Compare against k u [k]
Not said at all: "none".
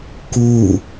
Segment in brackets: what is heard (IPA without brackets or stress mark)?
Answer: none